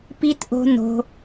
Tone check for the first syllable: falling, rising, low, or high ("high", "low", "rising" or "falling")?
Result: high